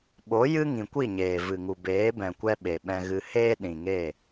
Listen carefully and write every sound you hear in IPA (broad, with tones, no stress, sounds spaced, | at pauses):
ɓ o˨˦ j ɨ˦ ŋ ĩ˨ kʷ i˦˨ ɲ eː˨ v ɨ˨ ŋ u˨ b eː˨˦ b ɛ̃˨ kʷ ɛ˧ ɓ e˨ ɓ ɛ̃˧ ɣ ɨ˧ h eː˦ ɗ ĩ˨ ŋ eː˦˨